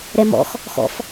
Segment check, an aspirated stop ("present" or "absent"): absent